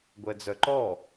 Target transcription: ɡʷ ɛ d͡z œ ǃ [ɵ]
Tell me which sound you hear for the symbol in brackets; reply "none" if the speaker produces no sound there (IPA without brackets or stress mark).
ɔ